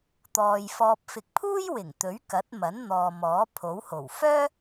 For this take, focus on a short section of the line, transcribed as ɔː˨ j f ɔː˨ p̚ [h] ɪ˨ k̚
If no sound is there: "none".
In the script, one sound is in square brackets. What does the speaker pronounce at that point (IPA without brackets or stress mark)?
f